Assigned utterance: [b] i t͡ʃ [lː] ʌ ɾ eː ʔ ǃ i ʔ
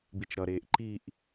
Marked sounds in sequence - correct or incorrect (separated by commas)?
correct, incorrect